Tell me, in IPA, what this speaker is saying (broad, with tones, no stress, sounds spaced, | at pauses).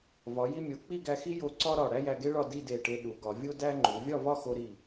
v ɒ˩˧ j i˧ mʲ o˩˧ k͡p i˥˧ ɡ æ˧ x i˥ j o˧ ǀ ɒ˥ ɾ ɒ˧˩ ɽ æ˥ j æ˧ ɡ e˥ ɭ ɒ˥˧ d i˥˧ d e˧˩ ʈ e˧ ɗ u˩˧ ɡ ɒ˩˧ vʲ o˥ d æ˥ ŋ͡ǃ u˩˧ vʲ ɒ˥˧ v ɒ˥˧ x o˧ ɾ i˧˩